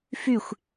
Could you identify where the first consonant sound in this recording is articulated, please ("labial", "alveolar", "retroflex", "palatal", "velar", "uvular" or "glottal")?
labial